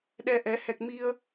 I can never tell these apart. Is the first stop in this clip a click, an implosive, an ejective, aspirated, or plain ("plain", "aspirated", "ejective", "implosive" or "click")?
implosive